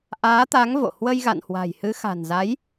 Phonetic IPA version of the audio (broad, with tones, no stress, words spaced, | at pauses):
ʔaː˨˦t̪a˨˦ŋ vo̰˧˨ hwə˧jɣa̰˧˨nhwa̤˨˩jhɨ˨˦ xa̤˨˩nza˨˦j